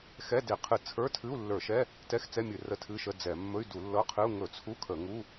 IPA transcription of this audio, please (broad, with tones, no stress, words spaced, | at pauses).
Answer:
xɛ˧˥˧de˧˩˧ qʰɨ˧˩˧t͡sʰə˞˧˥˧tʰɨ˧˥˧u̯ lːə˞˧˩˧ʃɛ˧˥˧ | tɛ˧˥˧xt͡sɛ˧˥˧mʲɨ˧˩˧ rə˧˥˧tʰɨ˧˥˧ʃə˧˥˧ d͡zɛ˧˩˧ mːɵ˧˥˧y̯du˧˩˧lːɤ˧˥˧qʰɨ˧˥˧u̯ ŋɵ˧˩˧t͡sʰu˧˥˧ kʰə˧˩˧ŋu˧˥˧